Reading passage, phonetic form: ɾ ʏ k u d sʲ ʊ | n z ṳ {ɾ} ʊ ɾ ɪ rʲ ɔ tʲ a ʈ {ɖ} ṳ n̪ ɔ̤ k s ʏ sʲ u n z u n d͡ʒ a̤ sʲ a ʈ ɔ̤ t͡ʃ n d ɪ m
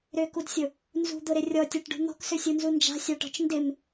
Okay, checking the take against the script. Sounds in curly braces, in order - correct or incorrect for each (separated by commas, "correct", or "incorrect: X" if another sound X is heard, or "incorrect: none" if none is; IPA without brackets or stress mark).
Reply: incorrect: d̪, correct